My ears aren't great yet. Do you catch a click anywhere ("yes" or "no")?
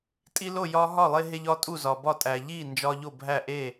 no